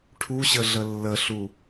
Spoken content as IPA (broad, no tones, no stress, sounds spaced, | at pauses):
ʈʰ u ɕ ə ɮ ə lː ə ɬ u